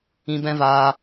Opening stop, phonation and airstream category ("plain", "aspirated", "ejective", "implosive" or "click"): plain